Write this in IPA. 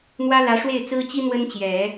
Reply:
n̪ w ä˥ l ä˧˥ ʂ w e˥˩ ɪ̯ t͡s ɹ̩˥ t͡ɕ i˥ n̪ w ə˥ n t͡ɕ j ɛ˨˩˦

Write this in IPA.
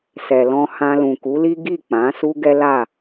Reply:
s ɛ˨ l ɔ̃˧ h ã˧ l ũ˨ k u˨˦ l i˦ ɡ i˦˨ k͡p ã˨˦ s u˦ ɡ ɛ˦ l a˦˨

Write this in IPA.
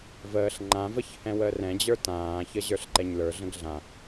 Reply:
v əː ɬ ŋ͡ǃ ã v ə ç h ɛ̃ w əː r ɛ̃ d͡ʑ ə˞ t ãː ç ə ʑ ə˞ ɬ ǃ ɛ ɲ l ə˞ ɮ ə̃ ɡ ɮ ã

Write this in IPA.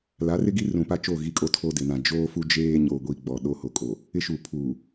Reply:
l a˨˦ r ɪ˦ ɡ i˦ r ũ˨ p a˦ t͡ʃ oː˦˨ ɣ i˦ kʼ o˦ tʰ oː˦ d ɪ˨ n ã˨ d͡ʒ oː˦ f u˦ d͡ʒ eː˦ ɲ o˨ ɡʷ i˨ ɡ͡b ɔ˨ ɗ o˦ h o˨ kʼ o˨ | ɪ˦ ʃ uː˨ pʰ uː˨

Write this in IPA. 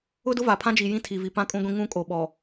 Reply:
ʊ˦ d ʊ˦ v a˨ pʰ ã˦ d͡ʒ i˨ j ĩ˦ tʰ i˨ v i˨ p ã˦ kʼ ũ˦ ɡʷ ĩ˦ ŋ ũ˦ kʼ o˨ ɓ ɔ˨

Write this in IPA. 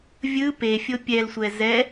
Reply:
vʲ ɯ p e fʲ o pʲ ɛ l sʷ ɛ z ɛ

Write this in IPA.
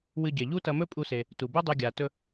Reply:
w ɨ˧ ɟ e˩ ʎ u˥ t ɐ˧ m ɵ˥ pʼ u˧ s e˩ | t u˩ b u˥ dˤ ʉ˧ ɡʲ a˩ t ɵ˧

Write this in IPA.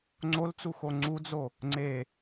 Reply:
ŋ͡ǀ o l t͡s u x o ŋ͡ǀ u d͡z o | ŋ͡ǀ e

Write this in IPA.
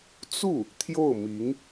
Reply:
t͡s u˥˩ | t̪ʰ j o˥˩ ʊ̯ m i˧˥ ŋ

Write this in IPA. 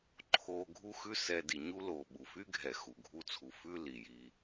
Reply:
ǃʰ oː˧ ɡʱ u˦ x ʉ˦ s ɛ˧ d i˨ ɲ u˦ l oː˨ ɓ u˨ f y˦ ɡʱ ɛ˨ x u˨ ɡʱ u˧ t͡sʰ u˨ f ʉ˦ l i˨ j iː˧

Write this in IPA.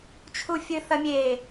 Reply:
t͡ʃʰ u fʲ ɨ θ ɐ mʲ eː

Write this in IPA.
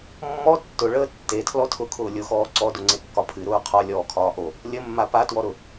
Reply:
mː ɔ tː ʊ ɭ əː tː e tʰ l ɔ tʰ ʊ kʰ ʊː lʲ ʊ x ɔː ǀ ɔ d ʊ ŋ͡ǀ e kː ɒ pʰ ɨ ɾ ʊː qʰ ɒ lʲ ɔː kʰ ɒː ʔ o | lʲ ə mː a p a t w ɔ ɾ ʊ

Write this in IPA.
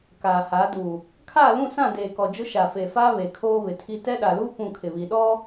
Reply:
k aː˨ h a˨˦ d u˨ | kʰ aː˦˨ l ũ˦˨ s ã˦˨ d eː˨ k ɔ˨ d͡ʒ ʊ˦ ʃ a˨ f e˨ f a˦ β e˨ kʰ oː˦ β ɪ˨ tʰ i˦ t ɛ˦ ɗ a˨ l uː˦ p ũ˦˨ kʰ ɪ˨ β i˨ ɗ ɔ˦

